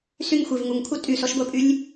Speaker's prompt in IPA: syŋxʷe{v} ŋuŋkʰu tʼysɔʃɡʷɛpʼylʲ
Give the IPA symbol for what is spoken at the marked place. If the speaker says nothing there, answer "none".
v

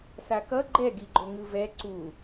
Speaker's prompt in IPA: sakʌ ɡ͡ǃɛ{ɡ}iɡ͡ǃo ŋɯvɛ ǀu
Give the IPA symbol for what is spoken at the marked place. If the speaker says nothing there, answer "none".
ɡ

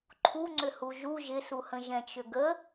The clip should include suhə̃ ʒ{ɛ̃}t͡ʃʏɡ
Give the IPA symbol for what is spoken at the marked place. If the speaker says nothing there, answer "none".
ɛ̃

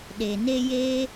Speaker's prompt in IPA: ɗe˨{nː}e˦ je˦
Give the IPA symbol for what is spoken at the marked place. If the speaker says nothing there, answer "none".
n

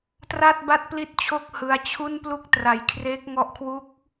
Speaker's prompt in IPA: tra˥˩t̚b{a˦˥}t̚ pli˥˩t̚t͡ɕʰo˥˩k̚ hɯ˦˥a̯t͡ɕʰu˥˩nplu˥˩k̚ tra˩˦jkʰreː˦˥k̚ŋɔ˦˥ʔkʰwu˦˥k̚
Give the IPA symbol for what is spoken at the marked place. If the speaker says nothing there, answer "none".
a˥˩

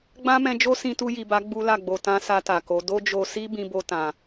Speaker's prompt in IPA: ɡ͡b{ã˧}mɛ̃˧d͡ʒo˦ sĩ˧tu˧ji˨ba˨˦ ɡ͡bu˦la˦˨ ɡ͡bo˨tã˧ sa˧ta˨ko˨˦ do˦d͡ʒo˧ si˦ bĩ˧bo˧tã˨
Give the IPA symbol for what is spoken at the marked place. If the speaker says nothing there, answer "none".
ã˦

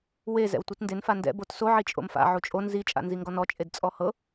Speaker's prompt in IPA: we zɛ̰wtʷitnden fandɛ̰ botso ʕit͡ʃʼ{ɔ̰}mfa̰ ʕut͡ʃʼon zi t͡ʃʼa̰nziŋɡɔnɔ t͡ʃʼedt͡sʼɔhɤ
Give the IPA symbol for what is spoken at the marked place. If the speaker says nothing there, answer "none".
o̰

